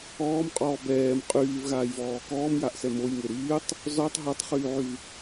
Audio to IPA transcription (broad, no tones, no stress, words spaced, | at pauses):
ɔːmqʼɔː bɛːm qʼyːvɣaːjvɔː kɔːmjaʔsɛ mojŋe ɾyːtˤ | zɔtˤ ɦɛtˤχyːʕyv